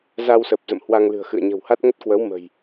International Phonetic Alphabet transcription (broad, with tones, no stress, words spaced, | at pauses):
za˧wsə˨˩p̚zə̰˧˨m hwa˧ŋlɨ̤˨˩ə̯xɨ̰˧˨ə̯ ɲə̤˨˩wha˦˥t̚ ŋə˦˥t̚kwə˨˦w mə̤˨˩j